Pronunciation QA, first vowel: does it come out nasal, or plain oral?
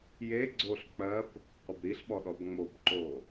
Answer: oral